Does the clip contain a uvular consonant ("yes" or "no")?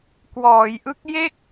no